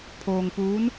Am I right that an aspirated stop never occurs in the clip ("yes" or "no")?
no